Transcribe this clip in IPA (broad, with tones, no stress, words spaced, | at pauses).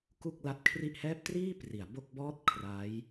ku˥˩k̚la˦˥t̚kʰri˥˩ʔhɛː˥˩p̚ triː˥˩ pri˩˦a̯bo˥˩k̚ bɔː˥˩t̚ kʰra˦˥j